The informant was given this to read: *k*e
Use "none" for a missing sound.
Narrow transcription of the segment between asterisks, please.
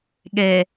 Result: ɠ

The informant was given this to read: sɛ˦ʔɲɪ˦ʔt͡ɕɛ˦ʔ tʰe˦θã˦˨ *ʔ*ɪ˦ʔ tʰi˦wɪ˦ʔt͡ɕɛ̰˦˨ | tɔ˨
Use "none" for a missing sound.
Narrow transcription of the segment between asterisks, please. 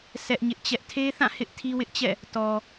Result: h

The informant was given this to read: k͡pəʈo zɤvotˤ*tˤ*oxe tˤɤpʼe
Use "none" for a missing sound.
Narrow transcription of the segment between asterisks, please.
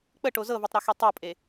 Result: ɾ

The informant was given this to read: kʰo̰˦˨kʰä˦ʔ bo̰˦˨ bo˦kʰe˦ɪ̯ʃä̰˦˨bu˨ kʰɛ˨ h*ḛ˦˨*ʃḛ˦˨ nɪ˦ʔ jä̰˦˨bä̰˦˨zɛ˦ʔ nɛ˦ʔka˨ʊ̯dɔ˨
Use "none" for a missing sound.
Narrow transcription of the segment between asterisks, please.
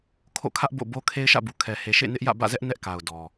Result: e˨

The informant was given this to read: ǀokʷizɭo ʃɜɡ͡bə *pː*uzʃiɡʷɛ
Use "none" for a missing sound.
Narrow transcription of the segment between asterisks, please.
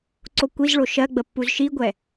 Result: pː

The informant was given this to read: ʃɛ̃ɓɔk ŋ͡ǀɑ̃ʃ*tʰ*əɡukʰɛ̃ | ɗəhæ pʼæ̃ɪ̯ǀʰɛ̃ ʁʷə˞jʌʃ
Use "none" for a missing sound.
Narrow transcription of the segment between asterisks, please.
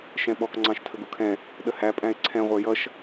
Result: tʰ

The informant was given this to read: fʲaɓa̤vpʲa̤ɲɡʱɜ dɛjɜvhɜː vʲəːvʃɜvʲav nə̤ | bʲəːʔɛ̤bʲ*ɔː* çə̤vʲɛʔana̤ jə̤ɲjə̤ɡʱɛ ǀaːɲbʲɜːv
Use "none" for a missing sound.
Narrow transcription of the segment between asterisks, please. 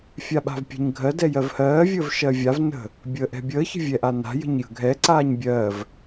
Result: əː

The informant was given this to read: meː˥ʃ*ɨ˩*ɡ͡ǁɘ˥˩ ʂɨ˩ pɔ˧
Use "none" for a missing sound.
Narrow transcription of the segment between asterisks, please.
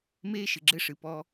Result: ɨ˩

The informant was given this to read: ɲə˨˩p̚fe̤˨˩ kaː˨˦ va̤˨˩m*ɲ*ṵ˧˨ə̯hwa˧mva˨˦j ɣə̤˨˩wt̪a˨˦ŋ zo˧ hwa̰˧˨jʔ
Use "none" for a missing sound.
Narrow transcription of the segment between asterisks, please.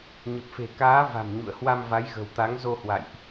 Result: ɲ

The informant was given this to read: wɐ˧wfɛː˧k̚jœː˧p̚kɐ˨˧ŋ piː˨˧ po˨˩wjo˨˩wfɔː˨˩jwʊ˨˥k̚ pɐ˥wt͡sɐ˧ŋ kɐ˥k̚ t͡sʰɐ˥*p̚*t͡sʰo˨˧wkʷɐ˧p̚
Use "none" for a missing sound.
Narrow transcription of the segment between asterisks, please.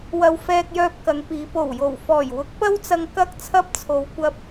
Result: p̚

